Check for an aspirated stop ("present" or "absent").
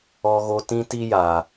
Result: absent